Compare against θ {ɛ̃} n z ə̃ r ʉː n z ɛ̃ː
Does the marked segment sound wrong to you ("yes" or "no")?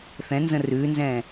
no